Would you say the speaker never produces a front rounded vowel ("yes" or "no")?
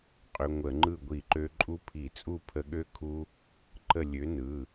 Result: no